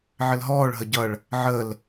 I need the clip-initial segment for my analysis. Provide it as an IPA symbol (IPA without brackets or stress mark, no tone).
ʕ